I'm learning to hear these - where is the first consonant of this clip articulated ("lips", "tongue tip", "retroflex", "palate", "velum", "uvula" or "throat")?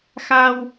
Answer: velum